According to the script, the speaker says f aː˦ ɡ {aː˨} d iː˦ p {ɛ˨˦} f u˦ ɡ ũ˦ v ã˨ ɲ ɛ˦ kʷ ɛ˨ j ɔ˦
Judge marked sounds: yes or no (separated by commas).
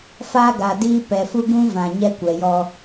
yes, no